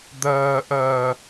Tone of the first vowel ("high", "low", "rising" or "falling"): low